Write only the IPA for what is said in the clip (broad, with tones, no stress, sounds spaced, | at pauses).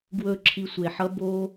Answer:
ɡ w ɵ˦˨ ǁʰ i˧ sʷ e˨ ħ ʌ˦ b o˦